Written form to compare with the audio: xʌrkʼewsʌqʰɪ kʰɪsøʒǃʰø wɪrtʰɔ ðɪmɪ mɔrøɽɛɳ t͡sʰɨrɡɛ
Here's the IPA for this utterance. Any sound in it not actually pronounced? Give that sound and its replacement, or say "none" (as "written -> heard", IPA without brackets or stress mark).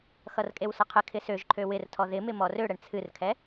ɡ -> kʰ